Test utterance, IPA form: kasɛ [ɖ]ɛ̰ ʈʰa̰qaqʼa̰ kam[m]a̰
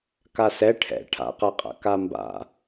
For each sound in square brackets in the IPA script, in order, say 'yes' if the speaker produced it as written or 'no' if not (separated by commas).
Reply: no, no